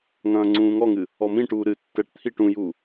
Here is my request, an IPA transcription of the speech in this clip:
ŋ ɐ̃ː ŋ͡ǀ ũː ŋ ɔ ŋ ɨ | ɔ m ĩ ʈ uː ɾ ɨ tː ɛ ʈ t̪ʰ i ʈ ũ j uː

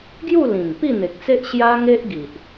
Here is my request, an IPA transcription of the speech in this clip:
ɡ j u˥˧ l ĩ˨˩ ŋ p i˥˧ n̪ e˨ k̚ t͡s e˦ ʔ ɕ j a˦ ŋ e˦ ʔ ɡ i˨ ʔ

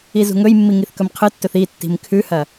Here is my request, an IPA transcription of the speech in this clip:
i z ṳ ŋ ɵ j mː i ŋ i θ k ɵ m qʰ ɨ tː ɵ θ i tː i̤ m kʰ ʉ h ɐ

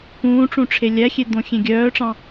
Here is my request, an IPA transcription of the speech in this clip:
k ũː ʈ͡ʂ ũ ʈ͡ʂʰ e lʲ æ xʲ e d̪ õ xʲ ẽ ɡʲ œː ʈ͡ʂ ɑ̃

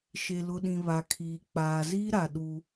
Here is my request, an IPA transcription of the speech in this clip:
ʃ e˨ l ʊ˨ ɗ ĩ˨ β a˨ kʰ iː˨ k͡p aː˨ z iː˦ ɾ a˨ ɗ u˦

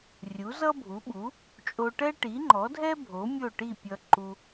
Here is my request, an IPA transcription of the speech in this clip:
rʲ u˩˥ z ʌ˥ bʱ u˩˥ ɓ u˩˥ | t͡ʃʼ o˧ ʈ ɛ˥ ʈ i˩˥ ŋ͡ǃ ɔ˩˥ dʱ ɛ˥ bʱ o˩˥ mʲ o˥˩ ʈ i˥˩ pʲ ʌ˧ ǃ u˧

